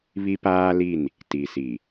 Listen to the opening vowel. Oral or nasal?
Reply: oral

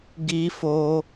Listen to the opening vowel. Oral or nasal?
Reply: oral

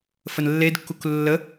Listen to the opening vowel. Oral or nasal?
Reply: oral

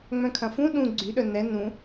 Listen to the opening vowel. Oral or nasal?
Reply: nasal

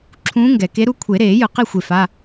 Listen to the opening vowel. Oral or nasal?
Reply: nasal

